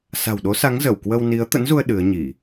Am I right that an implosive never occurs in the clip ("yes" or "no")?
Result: no